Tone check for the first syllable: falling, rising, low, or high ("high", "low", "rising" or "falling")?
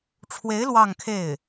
rising